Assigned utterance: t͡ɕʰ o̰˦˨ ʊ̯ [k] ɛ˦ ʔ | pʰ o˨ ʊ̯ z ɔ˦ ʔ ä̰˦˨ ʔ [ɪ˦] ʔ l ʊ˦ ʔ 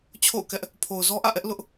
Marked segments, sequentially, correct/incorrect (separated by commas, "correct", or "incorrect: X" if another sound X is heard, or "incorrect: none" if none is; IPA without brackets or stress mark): correct, incorrect: ɛ˦